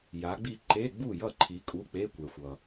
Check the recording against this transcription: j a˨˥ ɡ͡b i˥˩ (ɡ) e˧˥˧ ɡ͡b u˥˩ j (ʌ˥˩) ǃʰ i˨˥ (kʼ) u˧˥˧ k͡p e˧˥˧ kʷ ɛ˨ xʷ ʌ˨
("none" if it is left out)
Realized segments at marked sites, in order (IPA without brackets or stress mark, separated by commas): ǃ, ʌ˥˩, kʼ